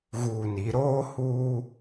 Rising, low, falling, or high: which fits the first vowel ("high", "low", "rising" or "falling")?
low